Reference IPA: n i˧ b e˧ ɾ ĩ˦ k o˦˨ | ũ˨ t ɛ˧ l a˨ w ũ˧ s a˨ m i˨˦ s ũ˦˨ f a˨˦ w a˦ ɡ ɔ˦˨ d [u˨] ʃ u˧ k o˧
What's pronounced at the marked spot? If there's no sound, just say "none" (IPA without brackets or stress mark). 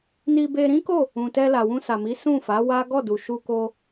u˨